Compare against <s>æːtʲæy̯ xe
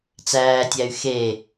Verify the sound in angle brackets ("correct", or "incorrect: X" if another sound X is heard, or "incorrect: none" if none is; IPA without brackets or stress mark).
incorrect: t͡s